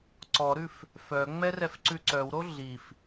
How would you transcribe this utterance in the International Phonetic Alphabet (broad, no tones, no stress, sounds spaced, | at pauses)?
ǀ ɔ ɾ ʉ f | f œ ŋ͡m ɛ r ɛ f ǀ ʉ ǀ œ w ɾ o ɮ i f